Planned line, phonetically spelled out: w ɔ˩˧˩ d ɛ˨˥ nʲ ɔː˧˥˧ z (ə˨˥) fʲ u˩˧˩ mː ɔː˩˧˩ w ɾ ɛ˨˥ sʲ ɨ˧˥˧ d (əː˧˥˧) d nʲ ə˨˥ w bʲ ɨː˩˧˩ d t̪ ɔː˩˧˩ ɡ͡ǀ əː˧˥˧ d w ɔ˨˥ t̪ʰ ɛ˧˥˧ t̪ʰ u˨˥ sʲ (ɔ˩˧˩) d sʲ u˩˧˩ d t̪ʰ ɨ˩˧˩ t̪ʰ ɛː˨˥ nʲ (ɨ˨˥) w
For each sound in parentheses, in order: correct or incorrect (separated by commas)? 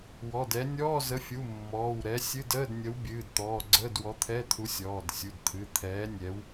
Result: correct, correct, incorrect, incorrect